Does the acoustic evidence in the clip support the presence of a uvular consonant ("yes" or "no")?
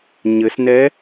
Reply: no